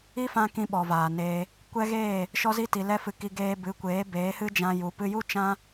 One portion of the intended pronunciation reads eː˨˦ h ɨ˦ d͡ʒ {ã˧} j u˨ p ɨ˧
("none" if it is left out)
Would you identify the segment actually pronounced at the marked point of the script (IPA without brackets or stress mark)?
ã˧